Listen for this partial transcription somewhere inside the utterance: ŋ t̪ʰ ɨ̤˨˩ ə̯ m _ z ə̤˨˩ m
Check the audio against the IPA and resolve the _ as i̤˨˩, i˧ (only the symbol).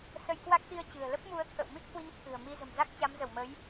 i˧